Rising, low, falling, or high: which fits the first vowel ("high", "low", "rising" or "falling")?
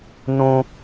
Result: high